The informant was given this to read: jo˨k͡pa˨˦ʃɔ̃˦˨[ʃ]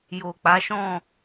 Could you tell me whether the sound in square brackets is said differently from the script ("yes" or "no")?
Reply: yes